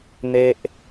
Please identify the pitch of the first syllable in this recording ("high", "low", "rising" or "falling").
low